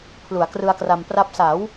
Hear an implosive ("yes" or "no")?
no